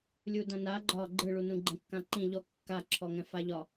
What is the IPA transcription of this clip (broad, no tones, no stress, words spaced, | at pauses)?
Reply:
lʲudãna ɡ͡ǃɒ ɡ͡ǃɯɭunũ ɡ͡ǃɛ̃kːãǃĩ ʎɔ kːaǁʰɔ ŋɛ̃faʎɒ